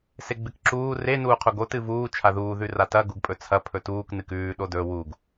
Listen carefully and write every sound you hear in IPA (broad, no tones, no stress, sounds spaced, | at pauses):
s e ɡ͡b ɨ k ǁ uː r e n uː qʰ u ɡ o t ɨ v uː t͡ʃʰ a ð uː ð ʉ r a t ɐ ɡ u ɡ pʼ ɵ t͡sʰ ɐ pʰ ɵ t uː k n ɨ k ʉː ɗ o d ɵ w u ɡ